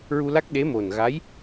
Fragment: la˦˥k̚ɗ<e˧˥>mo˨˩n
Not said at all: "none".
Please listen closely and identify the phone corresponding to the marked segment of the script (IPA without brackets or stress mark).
e˧˥